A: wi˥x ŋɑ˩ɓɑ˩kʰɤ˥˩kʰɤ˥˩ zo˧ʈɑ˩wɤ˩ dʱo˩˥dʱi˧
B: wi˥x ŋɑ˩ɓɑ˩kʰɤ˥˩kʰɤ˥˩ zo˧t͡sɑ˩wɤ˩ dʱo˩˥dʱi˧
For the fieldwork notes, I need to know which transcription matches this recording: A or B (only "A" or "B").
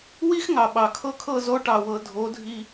A